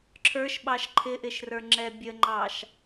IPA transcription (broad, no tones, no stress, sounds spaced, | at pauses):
ǁʰ ə˞ ʃ ɓ ɑ ʃ ǃʰ ɪ ʔ ɪ ʃ r ə˞ ŋ͡ǁ ɛ bʲ ə ŋ͡ǃ ɑ ʃ